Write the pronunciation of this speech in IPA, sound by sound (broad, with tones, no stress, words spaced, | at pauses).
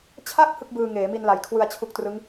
t͡ɕʰa˥˩k̚ hɯ˥˩k̚bɯː˧ŋeː˩˦mi˧n la˨˩jkʰwɯ˧a̯t͡ɕʰu˦˥k̚trɯ˦˥ŋ